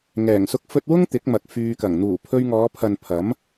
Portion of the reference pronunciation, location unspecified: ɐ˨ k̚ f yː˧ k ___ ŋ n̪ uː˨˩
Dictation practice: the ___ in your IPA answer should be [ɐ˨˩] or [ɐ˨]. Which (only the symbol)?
ɐ˨˩